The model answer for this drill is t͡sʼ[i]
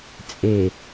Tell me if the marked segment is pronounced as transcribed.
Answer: no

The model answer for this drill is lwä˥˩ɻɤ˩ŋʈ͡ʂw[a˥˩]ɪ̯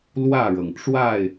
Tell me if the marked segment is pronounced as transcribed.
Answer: yes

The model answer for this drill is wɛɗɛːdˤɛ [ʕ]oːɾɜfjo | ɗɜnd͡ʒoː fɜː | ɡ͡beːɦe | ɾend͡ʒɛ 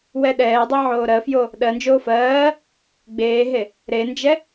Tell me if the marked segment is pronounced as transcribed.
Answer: yes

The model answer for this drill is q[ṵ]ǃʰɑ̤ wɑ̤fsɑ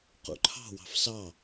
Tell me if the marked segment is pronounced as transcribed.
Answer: yes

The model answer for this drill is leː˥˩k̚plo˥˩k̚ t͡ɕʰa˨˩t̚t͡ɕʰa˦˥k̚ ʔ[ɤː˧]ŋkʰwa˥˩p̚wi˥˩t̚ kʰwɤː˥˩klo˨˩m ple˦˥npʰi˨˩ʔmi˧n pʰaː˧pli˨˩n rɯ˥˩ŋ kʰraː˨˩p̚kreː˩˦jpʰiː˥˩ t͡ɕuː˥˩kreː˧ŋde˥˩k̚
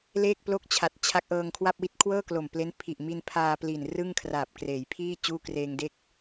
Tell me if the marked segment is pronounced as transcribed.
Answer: yes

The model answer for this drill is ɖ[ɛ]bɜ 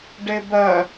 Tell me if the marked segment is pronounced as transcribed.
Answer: no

